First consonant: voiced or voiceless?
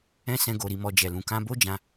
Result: voiceless